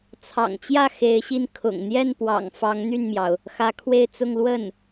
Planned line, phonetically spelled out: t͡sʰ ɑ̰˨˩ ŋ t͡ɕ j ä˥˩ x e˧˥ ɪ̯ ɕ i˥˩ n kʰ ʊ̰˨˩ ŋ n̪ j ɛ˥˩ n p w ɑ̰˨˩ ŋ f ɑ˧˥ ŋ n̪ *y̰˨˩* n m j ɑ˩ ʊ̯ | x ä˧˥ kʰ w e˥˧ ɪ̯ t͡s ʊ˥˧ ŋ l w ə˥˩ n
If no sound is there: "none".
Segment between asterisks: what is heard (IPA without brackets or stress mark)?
y˥˩